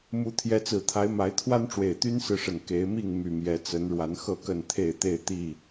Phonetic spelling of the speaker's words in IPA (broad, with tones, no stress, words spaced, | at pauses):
mu˨˦ t̪ʰjɛ˨˦t͡sɹ̩˨˩t̪ʰa˨˦ɪ̯ ma˨˦ɪ̯t̪ʰwa˦nʈ͡ʂwe˨˩ɪ̯ t̪y˦nsɹ̩˨ʂə˨˩n ke˨˦ɪ̯mi˥˨ŋ my˨˩mjɛ˨˦t͡sə˨˦n ɻwa˨˦nxɤ˥˨kə˥˨nt̪ʰe˥˨ɪ̯ t̪e˥˨ɪ̯t̪i˥˨